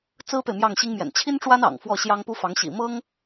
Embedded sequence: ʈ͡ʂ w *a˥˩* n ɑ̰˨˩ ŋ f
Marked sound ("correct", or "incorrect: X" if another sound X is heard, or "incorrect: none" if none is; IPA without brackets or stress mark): incorrect: a˥